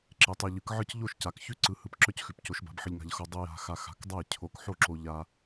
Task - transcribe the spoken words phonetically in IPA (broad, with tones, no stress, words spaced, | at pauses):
ǁe˨˥tˤe˧ʎɯ˨˥kʕɯ˥˨c ʎo˥˨ʃca˨˥kçʉ˥˨ ǀɯ˧hɯ˧p ǁœ˥˨cxʉ˨˥pco˨˥ʃ ba̤˨˥bħɯ˧ʎŋa̤˧ʎ xo˧ dˤɯ˧ja̤˧ xa˧xa̤˨˥kdˤa˥˨j cʰo˧kħo˥˨ǁo˧ ʎa˧